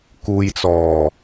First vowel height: high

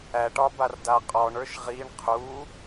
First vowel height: low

